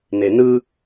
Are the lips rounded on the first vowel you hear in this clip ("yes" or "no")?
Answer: no